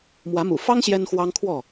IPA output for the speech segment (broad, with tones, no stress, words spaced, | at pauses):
mwä˨˦mṵ˨˩fɑ˦ŋ ɕjɛ˦nxwɑ˦ŋkʰwɔ˥˨